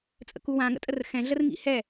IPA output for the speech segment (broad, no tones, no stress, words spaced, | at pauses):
t͡sʼə̰kuwã ŋə̰tʼərxɛ̃ ɮərŋḭhɛ